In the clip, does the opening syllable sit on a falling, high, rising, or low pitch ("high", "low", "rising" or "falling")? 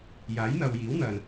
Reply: rising